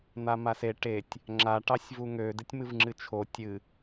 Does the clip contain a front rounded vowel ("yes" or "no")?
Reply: yes